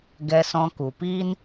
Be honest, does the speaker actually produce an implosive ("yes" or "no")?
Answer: no